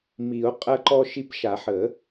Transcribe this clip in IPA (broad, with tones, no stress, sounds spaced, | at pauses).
m i˨˩˦ o̯ qʼ ɐ˧ ǃ ɔ˧ ʃ i˧ p ʃ a˨˩˦ ħ ə˨˩˦